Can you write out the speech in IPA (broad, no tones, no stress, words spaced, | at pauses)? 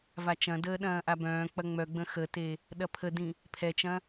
vat͡ʃɐ̃dəː ɗɐ̃ːʔabœ̃ːk͡pɐ ŋ͡mœɡ͡bə̃ xəte | ɗɐpʰədĩ | pʰɛt͡ʃɐ̃